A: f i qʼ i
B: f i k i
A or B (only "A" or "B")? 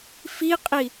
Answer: A